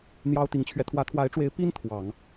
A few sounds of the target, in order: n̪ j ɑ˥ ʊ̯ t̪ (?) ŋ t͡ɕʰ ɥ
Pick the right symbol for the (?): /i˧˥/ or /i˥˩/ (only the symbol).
i˧˥